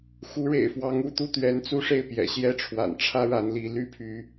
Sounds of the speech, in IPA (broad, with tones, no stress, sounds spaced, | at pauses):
x u˧˥ ɻ ḛ˨˩ ɪ̯ f w ɑ˧˥ ŋ u˥˧ t̪ u˥˩ t̪ ɥ ɛ˧˥ n t͡s u˥˧ ʂ e˥˩ ɪ̯ p j ɛ̰˨˩ ɕ j ɛ˥˩ ʈ͡ʂʰ w a̰˨˩ n ʈ͡ʂʰ ä˥ ɻ a˧˥ n l i˧˥ l y˥ pʰ y˧˥